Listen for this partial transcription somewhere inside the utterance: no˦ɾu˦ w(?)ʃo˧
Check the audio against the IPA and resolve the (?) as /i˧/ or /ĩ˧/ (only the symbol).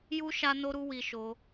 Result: i˧